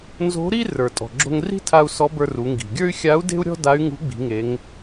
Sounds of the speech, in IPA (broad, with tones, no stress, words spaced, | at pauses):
nzo̤˧˥ɾi˥ rə˞˩ tʼɔ̤˩ ɡ͡ǁo̤˧ŋri̤˥tʰa˧u̯ sɔ˧˥bə˞˧ru˩˧ŋɡi̤˩ ɡʲə˞˥y̯xʲa˧˥u̯de̤˥u̯ɾʲɔ̤˥ da˧˥y̯ŋṳ˧˥ɡ͡bi̤˩˧ŋe˩˧ŋ